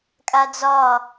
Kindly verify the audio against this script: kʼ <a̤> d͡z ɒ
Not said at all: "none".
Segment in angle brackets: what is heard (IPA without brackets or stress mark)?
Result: a